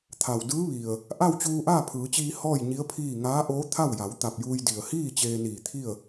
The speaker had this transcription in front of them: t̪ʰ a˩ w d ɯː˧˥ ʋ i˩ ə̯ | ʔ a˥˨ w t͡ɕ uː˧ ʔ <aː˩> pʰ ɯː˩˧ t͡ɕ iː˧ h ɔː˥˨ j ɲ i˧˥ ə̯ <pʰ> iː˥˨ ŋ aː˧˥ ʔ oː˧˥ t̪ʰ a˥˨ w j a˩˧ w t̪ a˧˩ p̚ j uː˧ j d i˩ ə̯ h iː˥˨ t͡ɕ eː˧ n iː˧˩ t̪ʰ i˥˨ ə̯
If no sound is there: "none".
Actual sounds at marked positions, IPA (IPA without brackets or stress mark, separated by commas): aː˥˨, pʰ